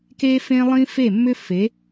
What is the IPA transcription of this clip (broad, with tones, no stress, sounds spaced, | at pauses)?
k e˦ f ẽ˦ lˠ ĩ˦ f e˦˨ mː ʏ˦ f e˨˦